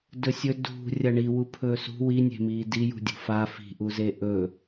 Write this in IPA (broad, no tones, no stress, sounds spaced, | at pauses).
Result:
d ɵ sʲ ɵ d ṳ rʲ ɐ ɳ i w u pʰ ɵː s ṳ w i nʲ e̤ m iː d i j ṳ dʲ ṳ f a f i̤ ʔ u z e ʔ ɵ